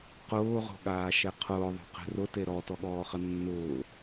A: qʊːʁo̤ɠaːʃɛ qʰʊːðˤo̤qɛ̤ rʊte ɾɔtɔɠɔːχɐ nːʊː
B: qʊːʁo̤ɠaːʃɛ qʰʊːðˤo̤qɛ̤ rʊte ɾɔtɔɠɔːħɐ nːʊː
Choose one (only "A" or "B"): A